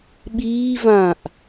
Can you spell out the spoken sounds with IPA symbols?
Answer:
ɓ iː v ã ʔ

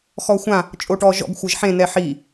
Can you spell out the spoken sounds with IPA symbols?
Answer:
x ɔ xʷ ã | t͡ʃʼ o ʈ ɔ ʒ ɔ̰ ɡ xʷ ɤ ʒ ħ ẽ n ɛ ħ i

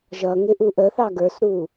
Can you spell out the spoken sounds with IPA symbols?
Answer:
ʒ ʌ ŋ ɪ ʔ u ʔ ə θ ɑ ɡ ə˞ s ɾ u

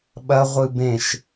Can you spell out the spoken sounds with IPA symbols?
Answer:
ɓ ɐ ʁʷ ɨ b ẽ ʃ

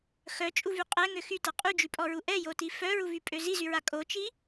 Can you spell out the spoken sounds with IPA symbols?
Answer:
x œ t͡ʃʼ u v y qʼ ɛ ŋ ø x y t a qʼ y d͡ʒ y pʼ ɔ ɹ u ʔ ɛ j o t i f œ ɹ u v y pʼ ø z i z y ɹ a kʼ o t͡ʃ i

